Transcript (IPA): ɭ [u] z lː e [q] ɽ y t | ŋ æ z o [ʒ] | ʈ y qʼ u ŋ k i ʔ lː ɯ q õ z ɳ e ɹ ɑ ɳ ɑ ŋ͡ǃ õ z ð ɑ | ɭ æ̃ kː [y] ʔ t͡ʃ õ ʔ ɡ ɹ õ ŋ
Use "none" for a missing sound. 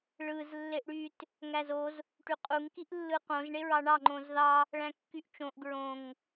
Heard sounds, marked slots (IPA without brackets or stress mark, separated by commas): ɯ, ʔ, z, y